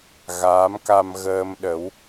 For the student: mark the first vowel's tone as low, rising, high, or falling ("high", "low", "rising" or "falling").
rising